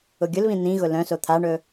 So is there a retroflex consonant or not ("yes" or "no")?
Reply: yes